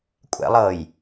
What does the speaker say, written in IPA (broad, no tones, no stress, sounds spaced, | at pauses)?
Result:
kʷʼ ɛ̰ lˠ ɤː j